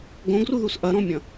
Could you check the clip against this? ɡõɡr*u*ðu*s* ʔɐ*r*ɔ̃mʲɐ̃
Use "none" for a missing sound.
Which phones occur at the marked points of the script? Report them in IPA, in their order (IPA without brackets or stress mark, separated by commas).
u, s, ɾ